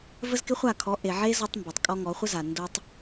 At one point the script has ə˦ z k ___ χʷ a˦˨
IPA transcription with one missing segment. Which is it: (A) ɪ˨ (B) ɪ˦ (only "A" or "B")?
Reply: B